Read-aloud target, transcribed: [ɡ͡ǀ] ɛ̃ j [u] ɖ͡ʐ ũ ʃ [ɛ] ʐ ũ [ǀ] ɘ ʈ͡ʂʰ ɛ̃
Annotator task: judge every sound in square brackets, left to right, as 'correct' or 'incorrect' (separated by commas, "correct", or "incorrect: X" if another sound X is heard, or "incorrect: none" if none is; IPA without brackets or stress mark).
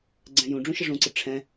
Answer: correct, incorrect: ũ, incorrect: ə, correct